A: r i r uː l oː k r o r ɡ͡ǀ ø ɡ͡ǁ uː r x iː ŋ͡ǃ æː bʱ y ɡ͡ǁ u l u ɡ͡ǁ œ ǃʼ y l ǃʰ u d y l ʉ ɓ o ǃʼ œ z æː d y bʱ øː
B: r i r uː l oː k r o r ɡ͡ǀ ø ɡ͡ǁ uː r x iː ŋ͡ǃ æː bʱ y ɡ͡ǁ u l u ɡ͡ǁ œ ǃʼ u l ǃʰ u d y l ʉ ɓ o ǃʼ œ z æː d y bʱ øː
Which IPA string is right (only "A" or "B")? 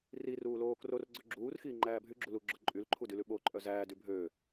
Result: A